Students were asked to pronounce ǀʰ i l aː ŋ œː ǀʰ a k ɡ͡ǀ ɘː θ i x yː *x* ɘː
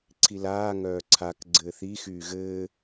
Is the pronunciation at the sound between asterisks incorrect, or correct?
incorrect